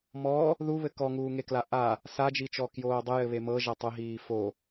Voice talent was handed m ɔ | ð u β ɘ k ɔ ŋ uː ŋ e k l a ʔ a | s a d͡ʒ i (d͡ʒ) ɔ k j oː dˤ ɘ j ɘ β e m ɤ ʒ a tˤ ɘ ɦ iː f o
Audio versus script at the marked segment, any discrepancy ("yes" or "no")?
yes